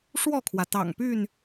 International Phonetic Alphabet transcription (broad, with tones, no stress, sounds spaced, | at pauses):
ʂ w ɔ˥˨ kʰ w ä˩ t̪ ɑ̰˨˩ ŋ p y˥˨ n